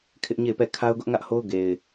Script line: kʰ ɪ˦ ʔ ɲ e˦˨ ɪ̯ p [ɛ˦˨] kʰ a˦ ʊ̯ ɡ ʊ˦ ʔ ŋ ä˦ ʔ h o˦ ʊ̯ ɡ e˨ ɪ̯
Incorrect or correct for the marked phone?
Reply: correct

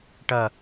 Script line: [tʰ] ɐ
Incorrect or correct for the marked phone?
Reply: incorrect: ʈ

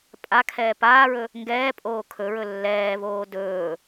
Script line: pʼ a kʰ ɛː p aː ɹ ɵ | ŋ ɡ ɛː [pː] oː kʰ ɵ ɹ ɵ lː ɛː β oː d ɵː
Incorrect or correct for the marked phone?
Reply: incorrect: pʼ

